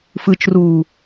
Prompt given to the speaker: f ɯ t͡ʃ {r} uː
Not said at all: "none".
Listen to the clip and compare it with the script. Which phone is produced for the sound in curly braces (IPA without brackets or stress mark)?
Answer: r